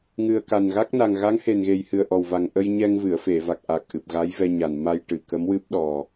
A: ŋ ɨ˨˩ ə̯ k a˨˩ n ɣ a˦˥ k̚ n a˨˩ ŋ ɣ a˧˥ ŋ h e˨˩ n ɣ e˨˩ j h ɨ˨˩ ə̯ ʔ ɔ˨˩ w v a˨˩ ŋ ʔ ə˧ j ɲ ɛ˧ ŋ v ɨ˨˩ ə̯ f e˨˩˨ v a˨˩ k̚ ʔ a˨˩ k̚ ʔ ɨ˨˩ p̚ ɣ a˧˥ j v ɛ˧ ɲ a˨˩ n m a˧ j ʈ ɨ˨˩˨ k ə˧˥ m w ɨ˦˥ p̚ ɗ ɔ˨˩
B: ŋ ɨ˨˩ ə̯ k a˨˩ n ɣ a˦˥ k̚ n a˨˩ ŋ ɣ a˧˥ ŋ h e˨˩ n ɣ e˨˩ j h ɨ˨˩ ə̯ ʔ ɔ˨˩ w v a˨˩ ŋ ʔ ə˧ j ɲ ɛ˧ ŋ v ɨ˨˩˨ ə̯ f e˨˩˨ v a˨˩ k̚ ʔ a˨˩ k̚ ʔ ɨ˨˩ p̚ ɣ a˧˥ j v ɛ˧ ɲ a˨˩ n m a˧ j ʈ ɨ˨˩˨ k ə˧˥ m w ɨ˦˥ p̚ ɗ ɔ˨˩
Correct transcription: B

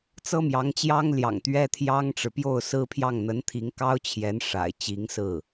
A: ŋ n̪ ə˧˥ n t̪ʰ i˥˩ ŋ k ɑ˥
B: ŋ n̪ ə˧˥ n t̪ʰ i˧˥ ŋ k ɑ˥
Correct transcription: B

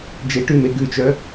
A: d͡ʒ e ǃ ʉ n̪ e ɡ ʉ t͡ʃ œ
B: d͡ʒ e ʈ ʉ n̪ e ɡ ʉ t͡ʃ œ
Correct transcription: B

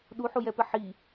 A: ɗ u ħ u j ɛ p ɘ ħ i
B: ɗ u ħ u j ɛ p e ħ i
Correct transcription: A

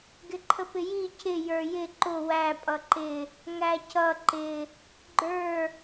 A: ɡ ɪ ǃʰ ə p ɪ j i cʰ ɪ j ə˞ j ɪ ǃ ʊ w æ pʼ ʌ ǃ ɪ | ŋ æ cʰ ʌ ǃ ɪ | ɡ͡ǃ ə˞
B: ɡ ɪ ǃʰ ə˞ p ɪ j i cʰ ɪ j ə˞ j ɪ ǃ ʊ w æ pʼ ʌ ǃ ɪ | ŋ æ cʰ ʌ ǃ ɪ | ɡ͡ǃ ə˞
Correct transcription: A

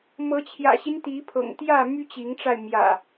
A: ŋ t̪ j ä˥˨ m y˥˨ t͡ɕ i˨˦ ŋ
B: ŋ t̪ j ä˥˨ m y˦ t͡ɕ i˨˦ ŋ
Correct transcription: B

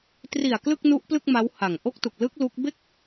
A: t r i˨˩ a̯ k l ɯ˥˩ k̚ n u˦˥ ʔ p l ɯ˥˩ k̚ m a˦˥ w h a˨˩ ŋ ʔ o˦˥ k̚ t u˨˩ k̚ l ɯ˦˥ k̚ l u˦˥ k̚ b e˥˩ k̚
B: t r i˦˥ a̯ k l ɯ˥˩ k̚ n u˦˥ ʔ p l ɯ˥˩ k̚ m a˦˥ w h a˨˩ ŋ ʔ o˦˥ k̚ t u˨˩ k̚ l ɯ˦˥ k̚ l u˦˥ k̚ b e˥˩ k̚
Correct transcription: A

